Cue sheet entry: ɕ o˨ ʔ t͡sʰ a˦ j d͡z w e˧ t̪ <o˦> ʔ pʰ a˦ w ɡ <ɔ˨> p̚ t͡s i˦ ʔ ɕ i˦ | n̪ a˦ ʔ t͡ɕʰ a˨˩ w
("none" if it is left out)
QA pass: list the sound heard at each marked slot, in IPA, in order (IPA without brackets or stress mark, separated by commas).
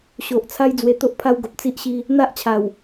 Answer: o˦, o˨